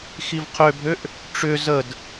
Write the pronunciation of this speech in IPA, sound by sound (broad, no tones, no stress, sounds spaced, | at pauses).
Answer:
x i v qʰ ø bʱ ø ʔ | ʈ͡ʂ ʏ z ə d